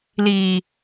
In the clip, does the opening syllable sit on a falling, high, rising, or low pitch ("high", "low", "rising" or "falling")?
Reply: low